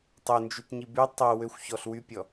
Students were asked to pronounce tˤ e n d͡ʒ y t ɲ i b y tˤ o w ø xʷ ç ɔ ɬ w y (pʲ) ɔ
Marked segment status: correct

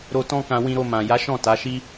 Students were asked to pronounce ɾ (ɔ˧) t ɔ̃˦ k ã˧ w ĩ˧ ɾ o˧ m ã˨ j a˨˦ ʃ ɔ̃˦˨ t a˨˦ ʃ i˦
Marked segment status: incorrect: o˧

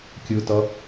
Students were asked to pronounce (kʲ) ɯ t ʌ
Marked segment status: correct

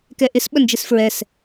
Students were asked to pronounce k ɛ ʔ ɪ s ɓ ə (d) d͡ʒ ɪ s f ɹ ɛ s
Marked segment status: incorrect: n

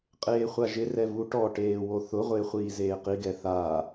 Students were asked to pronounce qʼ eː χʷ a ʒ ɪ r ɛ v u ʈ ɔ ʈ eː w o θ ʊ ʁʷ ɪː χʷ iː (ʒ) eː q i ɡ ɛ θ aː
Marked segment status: incorrect: z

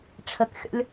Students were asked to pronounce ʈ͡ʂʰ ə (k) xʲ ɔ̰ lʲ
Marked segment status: correct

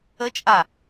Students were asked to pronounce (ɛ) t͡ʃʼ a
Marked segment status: incorrect: ə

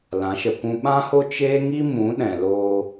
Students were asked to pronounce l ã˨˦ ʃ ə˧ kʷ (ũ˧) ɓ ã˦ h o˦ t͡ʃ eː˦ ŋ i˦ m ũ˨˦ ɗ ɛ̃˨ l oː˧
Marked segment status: correct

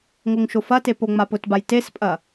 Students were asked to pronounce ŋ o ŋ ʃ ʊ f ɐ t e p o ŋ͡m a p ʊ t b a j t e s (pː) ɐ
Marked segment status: incorrect: pʼ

